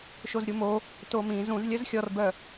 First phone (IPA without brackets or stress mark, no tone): ʃ